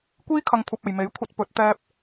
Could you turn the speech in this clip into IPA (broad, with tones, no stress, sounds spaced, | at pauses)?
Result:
kʷ iː˧ kʰ ɐ˨ ŋ kʷʰ ɐ˨ p̚ ɐ˨ j m e˨˥ j kʷʰ ɐ˧ t̚ p ɵ˨˥ t̚ t̪ ɛː˧ p̚